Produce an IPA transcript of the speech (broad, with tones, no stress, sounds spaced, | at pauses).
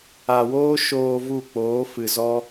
a˨ w oː˦ ʃ oː˨ v u˦˨ k͡p oː˨˦ f ɨ˨ z ɔ˦